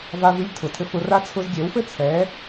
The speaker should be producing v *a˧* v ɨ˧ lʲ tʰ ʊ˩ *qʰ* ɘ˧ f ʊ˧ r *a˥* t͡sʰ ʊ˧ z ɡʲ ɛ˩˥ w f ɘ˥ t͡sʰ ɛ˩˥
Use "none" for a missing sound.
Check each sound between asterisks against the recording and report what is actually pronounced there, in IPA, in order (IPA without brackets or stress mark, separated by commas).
a˧, tʰ, a˥